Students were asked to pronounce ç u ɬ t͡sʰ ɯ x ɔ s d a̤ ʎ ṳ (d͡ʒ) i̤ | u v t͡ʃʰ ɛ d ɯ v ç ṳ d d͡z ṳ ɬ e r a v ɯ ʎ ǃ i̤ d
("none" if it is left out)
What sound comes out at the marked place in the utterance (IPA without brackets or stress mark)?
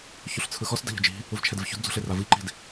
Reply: d͡ʒ